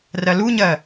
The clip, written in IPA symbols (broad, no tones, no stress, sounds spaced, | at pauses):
r ɜ l u ɲ ɜ